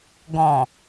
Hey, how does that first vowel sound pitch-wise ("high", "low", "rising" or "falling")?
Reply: low